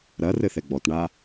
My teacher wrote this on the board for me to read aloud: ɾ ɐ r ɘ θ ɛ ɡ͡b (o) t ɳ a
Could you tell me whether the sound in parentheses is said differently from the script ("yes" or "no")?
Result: yes